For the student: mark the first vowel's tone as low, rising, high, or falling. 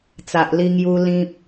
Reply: low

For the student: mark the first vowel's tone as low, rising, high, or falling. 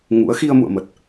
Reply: rising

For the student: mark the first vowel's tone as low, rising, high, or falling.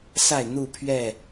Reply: falling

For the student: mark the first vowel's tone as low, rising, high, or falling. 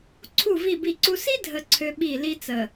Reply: falling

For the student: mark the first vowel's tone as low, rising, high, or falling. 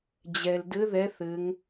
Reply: low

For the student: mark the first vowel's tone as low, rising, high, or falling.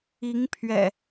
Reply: rising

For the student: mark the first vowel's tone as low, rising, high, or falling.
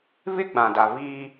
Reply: high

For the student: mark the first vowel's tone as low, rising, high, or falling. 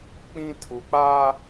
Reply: high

